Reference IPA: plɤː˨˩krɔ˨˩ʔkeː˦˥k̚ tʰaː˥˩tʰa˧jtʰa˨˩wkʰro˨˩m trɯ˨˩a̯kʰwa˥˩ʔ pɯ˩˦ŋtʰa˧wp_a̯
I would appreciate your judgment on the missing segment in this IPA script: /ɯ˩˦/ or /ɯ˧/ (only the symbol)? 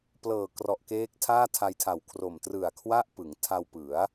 ɯ˩˦